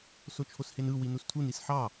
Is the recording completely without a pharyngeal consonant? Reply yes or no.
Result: no